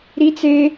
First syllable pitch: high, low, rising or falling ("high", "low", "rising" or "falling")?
high